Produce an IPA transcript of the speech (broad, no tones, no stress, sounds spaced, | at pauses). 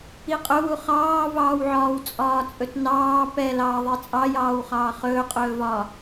i qʼ ɵ w u χ ɑː v ɑː w ʕ ɒː w t͡sʼ ɒː t͡sʼ ɵ t n ɑː p ɛ l ɑː ðˤ i t͡sʼ ɑ j ɑː w χ ɑː χ ɵː qʼ ɵː v ɒː